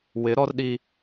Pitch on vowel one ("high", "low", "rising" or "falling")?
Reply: rising